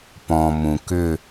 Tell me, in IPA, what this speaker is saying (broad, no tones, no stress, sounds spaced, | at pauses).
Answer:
p ɔ̃ m ũ k ʏ